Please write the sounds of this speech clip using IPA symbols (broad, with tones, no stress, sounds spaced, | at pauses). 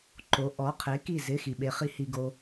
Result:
ǃ o˨˥ ʔ ɔ˨˥ qʰ e˨˥ k i˥˨ z ɪ˧˥˧ x i˨ ɓ e˨˥ χ i˨˥ h i˨ ɡ o˨